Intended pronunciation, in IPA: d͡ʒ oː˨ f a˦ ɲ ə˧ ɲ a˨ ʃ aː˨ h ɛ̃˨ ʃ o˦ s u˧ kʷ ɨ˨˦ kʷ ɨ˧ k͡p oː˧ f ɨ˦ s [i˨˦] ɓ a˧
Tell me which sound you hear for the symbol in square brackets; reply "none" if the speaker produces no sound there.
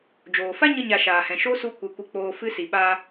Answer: i˨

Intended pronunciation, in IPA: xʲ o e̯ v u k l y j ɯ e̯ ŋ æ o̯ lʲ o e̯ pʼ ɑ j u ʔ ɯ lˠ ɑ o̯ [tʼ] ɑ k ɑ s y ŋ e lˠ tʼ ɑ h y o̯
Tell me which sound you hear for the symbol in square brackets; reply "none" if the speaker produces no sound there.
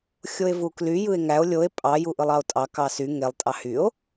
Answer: tʼ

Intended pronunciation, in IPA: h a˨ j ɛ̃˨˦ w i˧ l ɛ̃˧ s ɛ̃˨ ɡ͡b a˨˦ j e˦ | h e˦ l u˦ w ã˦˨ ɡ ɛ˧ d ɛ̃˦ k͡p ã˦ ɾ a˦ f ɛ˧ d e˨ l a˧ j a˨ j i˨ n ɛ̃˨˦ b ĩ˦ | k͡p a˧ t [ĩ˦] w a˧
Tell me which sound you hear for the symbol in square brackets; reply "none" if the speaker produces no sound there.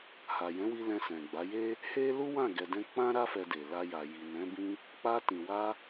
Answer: ĩ˨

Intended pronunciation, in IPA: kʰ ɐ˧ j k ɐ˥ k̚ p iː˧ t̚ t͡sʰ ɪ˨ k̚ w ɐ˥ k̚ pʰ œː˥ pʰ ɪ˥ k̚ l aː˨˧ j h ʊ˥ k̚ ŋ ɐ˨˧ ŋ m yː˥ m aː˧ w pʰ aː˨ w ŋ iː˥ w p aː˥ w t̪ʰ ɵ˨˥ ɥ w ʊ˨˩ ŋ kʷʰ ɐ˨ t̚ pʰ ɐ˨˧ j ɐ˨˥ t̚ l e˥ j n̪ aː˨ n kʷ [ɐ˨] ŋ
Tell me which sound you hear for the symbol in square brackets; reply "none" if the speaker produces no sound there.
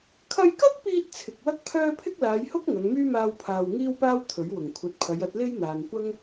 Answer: ɐ˥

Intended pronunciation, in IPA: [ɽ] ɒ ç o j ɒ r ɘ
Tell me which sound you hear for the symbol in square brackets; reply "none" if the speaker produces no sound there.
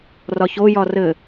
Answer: r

